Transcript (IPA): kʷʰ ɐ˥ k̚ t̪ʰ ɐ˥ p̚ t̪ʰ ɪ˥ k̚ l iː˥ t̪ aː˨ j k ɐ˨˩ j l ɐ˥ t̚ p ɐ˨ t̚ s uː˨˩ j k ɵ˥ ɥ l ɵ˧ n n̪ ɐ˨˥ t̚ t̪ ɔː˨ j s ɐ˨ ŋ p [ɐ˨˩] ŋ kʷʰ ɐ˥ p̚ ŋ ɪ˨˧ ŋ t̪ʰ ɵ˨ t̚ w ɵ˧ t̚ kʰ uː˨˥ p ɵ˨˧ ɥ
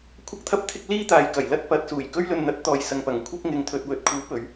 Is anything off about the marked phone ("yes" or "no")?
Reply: no